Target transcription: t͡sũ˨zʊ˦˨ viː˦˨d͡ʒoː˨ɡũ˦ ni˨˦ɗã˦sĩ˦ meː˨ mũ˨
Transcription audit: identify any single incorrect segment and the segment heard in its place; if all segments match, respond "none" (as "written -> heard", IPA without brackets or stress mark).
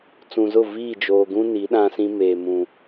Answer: none